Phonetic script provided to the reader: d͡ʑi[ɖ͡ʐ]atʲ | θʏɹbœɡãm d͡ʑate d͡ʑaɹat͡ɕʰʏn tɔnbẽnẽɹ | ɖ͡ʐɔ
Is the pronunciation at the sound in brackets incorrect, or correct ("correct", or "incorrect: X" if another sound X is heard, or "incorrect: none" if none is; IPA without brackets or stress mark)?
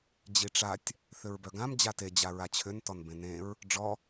incorrect: ʈ͡ʂ